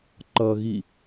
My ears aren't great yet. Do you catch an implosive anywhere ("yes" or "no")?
no